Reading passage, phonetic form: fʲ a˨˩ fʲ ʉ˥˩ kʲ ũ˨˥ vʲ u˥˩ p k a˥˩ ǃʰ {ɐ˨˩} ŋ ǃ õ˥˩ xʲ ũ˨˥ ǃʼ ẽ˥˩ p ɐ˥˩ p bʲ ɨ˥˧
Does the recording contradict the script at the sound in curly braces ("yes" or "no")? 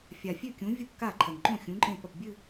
no